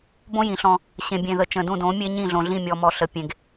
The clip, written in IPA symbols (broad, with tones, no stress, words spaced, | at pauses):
bõ˦jĩ˨ɬɔ̃˦ | ɕẽ˨bʲẽ˨ðə˨ t͡ʃə̃˨dũ˦˨dõ˨˦mʲe˦ ɲĩ˦˨ɮõ˨ɮĩ˦˨ mʲɔ˨mɔ˨ɬə˨ pʲẽ˨ɡ